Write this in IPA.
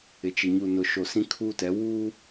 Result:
ɪ˨t͡ʃɪ˨ ɲu˨nʊ˨ʃo˨sĩ˦ kʰuː˦tɛ˨˦ wuː˦

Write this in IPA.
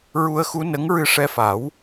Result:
ɹu˧ə̯xu˧˥ nə˧˥ŋɹɨ˧ʂɛ˧fa˨˩˦w

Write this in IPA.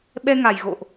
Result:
ɓɛ˧ŋa˨˩jɣo̰˧˨ʔ

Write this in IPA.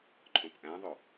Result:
ǃʰõpʔæ̃ðˤo

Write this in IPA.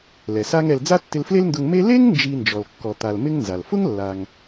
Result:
lɛ˩sa˥ŋɛ˧l d͡za˥tːɪ˧lfle˥lndʊ˧ŋ me˥ le˥ŋ nd͡ʒi˧ nd͡ʒɔ˩lkːɔ˩t̪a˩l mɪ˥ŋnza˩l fʊ˥ŋlːa˩ŋ

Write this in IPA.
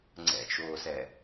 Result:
ŋ͡ǀɛ̰t͡ʃoːsɛ

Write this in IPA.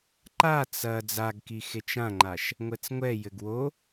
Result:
ǃa t͡sɐ d͡zaɡkixet͡ʃ ãŋ͡ǃaʃ | ŋʷɛt͡sŋʷɛ jɘɡwo

